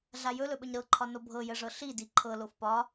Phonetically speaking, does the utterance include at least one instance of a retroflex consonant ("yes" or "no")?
yes